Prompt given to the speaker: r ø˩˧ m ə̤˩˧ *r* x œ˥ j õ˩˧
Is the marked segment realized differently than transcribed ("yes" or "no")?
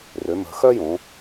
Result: yes